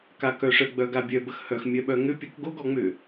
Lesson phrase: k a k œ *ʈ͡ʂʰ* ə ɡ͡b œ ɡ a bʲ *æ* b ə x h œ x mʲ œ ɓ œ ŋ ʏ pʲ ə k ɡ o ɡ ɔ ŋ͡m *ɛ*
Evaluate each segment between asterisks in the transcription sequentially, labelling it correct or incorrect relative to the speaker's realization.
incorrect, incorrect, incorrect

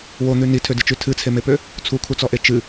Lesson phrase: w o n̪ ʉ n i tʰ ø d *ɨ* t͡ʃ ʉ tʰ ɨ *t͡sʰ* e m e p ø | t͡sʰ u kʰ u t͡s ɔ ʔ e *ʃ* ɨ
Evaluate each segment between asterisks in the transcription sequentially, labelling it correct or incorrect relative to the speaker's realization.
correct, correct, incorrect

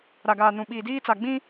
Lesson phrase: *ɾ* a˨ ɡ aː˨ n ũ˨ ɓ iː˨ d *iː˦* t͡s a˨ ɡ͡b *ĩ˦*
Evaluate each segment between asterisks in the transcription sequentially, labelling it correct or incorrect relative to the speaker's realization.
correct, correct, correct

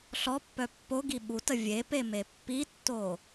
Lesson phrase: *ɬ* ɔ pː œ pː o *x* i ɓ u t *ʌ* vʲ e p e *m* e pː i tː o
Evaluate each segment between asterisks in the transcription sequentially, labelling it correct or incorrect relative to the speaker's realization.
correct, incorrect, incorrect, correct

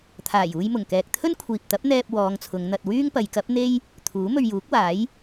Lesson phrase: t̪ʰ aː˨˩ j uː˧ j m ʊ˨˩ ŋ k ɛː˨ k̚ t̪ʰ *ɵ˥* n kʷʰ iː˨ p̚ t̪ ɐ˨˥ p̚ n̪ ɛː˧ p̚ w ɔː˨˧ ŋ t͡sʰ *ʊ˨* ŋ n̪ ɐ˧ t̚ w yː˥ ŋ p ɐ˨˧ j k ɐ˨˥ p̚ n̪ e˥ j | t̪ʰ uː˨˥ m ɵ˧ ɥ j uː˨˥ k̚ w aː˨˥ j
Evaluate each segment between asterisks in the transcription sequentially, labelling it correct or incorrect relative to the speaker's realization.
correct, incorrect

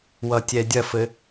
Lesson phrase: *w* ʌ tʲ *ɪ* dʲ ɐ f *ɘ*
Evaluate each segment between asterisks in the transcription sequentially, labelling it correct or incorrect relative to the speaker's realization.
correct, incorrect, correct

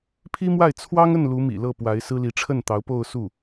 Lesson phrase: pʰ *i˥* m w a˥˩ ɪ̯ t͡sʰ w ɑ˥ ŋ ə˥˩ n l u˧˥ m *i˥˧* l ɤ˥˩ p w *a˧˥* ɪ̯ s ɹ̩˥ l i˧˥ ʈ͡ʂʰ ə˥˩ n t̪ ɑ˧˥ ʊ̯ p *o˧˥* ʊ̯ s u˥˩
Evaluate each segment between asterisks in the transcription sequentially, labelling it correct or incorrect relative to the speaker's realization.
correct, incorrect, correct, incorrect

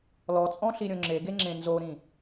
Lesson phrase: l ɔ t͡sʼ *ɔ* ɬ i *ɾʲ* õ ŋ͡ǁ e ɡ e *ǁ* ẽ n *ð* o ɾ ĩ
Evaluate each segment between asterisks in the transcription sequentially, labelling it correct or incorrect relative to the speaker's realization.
incorrect, correct, incorrect, incorrect

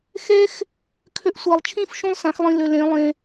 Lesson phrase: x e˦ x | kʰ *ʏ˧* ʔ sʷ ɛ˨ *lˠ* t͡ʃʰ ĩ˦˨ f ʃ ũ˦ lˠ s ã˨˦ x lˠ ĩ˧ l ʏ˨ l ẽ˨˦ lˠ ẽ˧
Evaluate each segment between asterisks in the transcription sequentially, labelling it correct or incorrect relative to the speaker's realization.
correct, correct

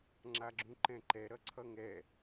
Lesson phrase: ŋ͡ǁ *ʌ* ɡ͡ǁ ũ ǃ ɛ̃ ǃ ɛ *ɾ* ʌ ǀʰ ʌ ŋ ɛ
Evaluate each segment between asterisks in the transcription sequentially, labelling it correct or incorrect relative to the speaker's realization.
incorrect, correct

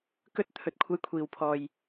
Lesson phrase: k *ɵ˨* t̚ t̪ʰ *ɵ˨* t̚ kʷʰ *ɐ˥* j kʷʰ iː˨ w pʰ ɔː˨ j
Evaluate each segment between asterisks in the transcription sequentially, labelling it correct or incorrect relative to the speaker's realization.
incorrect, correct, incorrect

